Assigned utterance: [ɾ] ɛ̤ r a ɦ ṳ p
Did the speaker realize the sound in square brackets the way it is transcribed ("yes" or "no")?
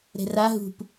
yes